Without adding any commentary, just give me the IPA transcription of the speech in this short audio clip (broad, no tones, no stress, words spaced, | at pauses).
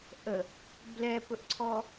ʔə | blɛpɵʔǀʰɔ